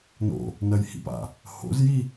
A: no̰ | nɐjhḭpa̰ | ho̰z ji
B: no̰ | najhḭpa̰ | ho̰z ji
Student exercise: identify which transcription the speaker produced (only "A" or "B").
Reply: A